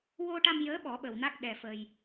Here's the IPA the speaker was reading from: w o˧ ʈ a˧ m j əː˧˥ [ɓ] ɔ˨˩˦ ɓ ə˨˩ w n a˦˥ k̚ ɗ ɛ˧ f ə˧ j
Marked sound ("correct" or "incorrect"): correct